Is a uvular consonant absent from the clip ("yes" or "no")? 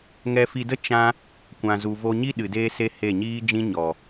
yes